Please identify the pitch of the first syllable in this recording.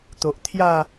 low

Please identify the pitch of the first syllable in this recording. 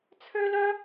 high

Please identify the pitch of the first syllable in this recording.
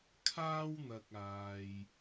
high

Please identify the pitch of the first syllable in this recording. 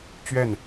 falling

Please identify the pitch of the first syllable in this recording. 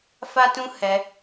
high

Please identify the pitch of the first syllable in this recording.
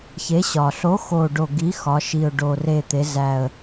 rising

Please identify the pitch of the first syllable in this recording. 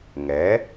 rising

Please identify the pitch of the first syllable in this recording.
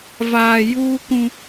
low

